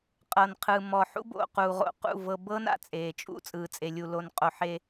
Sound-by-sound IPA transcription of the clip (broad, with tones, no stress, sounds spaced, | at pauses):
qʼ ɤ˨ n qʰ ɯ˨ m ɔ˨ ħ ṵ˦ b o̰˨ q uː˨ ʁ o̰˨ q ṵ˦˨ v ɤ˨ b ɤː˦ n a̰˨ t͡sʼ eː˨ t͡ʃʼ ṵ˦ t͡sʼ ɯː˨ t͡sʼ e˨ lʲ u˨ l o˨ n qʼ o˨ ħ e˦